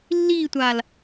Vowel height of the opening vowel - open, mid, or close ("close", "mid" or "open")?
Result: close